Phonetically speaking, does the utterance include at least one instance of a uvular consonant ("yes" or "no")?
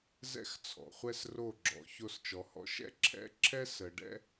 yes